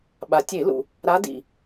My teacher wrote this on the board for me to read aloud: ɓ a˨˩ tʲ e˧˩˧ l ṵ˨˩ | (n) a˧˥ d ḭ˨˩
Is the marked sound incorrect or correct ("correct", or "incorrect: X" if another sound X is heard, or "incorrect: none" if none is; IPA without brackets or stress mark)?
incorrect: ɾ